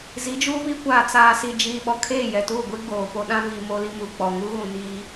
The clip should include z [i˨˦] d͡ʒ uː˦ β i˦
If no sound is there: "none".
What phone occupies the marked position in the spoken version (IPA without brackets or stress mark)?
i˨˦